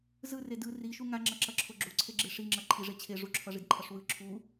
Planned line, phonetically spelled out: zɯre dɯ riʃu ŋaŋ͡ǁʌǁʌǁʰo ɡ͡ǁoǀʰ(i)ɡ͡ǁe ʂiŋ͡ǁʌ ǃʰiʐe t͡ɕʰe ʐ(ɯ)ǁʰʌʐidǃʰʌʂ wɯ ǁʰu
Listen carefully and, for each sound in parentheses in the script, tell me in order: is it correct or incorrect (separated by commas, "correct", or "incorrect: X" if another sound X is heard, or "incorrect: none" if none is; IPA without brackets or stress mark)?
incorrect: e, incorrect: u